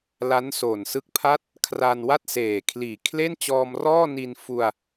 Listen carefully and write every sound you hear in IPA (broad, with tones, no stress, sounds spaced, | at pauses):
l a˦˥ n s oː˨˩ n s ɯ˦˥ k̚ pʰ a˥˩ t̚ | kʰ r a˧ n w a˥˩ t̚ s eː˨˩ kʰ l iː˨˩ kʰ l e˥˩ n t͡ɕ ɔː˧ m r ɔː˥˩ n i˧ n f u˧ a̯